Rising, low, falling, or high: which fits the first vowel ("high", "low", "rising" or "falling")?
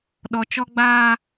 low